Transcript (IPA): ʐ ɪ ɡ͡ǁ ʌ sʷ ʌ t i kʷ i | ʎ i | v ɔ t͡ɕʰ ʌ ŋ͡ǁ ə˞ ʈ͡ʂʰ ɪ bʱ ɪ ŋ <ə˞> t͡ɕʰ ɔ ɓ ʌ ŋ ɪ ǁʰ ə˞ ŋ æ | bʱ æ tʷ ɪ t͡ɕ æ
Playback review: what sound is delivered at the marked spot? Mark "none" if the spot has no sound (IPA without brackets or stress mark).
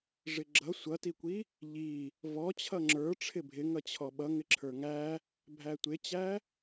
ʌ